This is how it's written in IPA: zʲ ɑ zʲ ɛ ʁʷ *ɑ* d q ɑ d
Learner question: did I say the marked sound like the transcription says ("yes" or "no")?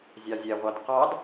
yes